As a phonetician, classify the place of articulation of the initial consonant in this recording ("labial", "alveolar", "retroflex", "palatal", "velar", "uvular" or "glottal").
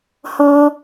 glottal